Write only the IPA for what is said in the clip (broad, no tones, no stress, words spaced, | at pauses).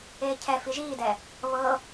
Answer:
eːcʰɛ fiʒiːdɛ | βɤ